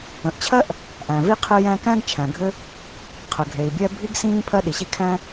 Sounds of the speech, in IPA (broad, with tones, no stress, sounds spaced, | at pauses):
ə̃˩ ʔ t͡ɕʰ ɜ˥ ʔ | ʔ æ̃˩ v i˥ qʰ ɘ˥ j æ̃˥ k æ̃˥ ɡ t͡ʃʰ æ̃˩ ɡʱ ɘ˥ | qʰ ə˩ ɡʱ e˩ i̯ bʲ ɛ˥ bʱ i˥ ɡ s ĩː˥ pʰ ɜ˥ ɗ i˩ ɕ i˥ kʰ æ̃˥